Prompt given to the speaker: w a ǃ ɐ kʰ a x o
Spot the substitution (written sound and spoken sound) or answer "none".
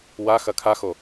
ǃ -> x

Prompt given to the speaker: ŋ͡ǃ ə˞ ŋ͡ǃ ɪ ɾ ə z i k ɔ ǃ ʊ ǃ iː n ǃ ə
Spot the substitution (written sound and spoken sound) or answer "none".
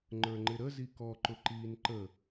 none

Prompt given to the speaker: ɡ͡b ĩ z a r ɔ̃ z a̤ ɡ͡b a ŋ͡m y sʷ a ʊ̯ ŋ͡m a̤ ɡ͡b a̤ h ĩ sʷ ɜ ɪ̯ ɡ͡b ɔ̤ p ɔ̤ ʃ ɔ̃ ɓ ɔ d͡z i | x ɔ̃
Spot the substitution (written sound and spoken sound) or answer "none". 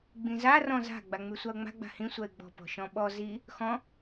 d͡z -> z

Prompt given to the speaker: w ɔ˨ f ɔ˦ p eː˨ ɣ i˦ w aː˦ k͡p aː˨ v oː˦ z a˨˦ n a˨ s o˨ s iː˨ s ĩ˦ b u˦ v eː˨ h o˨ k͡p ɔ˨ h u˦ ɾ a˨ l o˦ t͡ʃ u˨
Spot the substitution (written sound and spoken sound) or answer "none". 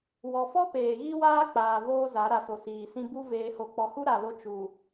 n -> ɾ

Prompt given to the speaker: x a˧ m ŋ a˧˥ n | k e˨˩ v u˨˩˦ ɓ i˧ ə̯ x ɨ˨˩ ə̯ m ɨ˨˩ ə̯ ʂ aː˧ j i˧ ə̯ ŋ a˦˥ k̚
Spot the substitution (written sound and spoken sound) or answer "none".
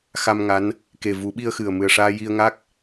none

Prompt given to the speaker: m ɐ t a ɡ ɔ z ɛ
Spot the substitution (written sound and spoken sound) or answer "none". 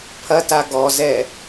m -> pʰ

